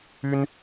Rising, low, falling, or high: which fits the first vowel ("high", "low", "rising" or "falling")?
high